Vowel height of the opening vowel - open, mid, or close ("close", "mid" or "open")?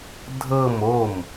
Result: mid